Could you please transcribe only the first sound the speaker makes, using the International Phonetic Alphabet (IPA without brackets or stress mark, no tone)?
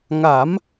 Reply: ŋ